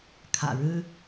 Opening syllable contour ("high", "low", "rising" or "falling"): low